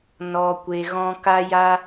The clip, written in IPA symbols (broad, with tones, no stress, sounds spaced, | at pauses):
n ɔ˧ kʷ e˧ ɣ ɔ̃˦ k a˦ j a˦